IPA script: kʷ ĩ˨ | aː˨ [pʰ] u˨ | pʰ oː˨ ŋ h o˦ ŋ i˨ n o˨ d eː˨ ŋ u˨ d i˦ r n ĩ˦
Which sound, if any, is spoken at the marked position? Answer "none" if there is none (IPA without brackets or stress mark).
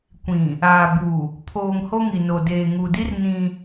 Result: b